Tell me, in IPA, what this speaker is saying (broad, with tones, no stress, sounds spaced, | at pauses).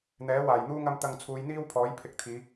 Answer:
n̪ ɛː˨˥ w aː˨˩ j n̪ uː˥ ŋ ɐ˧ m t̪ ɐ˨ ŋ t͡sʰ uː˨˧ j n̪ iː˥ w pʰ ɔː˨˥ j pʰ ɪ˧ k̚ t̪ʰ iː˨˧